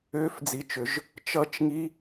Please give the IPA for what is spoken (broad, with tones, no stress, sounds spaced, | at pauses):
ʏː˧˥˧ f d͡z i˨˩ t͡ʃ ʏ˩˧ ʒ | t͡ʃ ʌ˧˥˧ t͡ʃ ŋ i˧˥˧